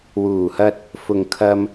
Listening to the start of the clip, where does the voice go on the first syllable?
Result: low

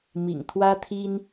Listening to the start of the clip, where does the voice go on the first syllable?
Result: low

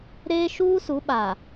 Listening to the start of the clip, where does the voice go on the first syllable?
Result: high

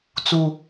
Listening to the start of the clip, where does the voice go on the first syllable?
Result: high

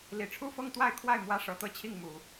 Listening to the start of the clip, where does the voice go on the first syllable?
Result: low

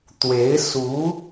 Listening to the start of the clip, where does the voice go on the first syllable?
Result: rising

